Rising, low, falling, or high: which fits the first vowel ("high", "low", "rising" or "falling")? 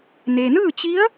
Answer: low